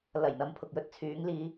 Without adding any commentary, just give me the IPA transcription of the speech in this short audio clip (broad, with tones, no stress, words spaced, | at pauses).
lɐ˨˩j n̪ɐ˨˧mpʰʊ˨k̚jɵ˨t̚ t͡sʰyː˨˧ŋliː˧